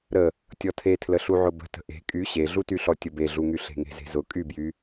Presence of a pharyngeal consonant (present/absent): present